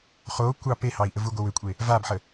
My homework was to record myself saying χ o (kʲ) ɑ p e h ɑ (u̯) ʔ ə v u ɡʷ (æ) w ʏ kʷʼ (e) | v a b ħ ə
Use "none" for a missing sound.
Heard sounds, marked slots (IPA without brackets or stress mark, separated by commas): kʷ, i̯, ə, e